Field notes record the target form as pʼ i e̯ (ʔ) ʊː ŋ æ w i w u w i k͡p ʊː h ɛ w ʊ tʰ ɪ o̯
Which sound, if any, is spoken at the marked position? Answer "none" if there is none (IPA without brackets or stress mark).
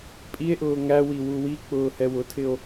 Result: ʔ